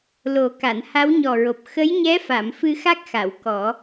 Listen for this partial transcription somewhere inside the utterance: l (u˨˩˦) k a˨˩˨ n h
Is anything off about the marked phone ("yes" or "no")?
yes